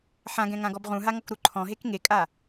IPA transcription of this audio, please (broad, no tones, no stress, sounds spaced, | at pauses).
ħ ã ɡ ɛ̃ ŋ ã ɡ ɔ b ʁ ũ ɦ a ŋ ɔ k ɾ u ǃʰ ɔ̃ ɦ e k ŋ e kʼ a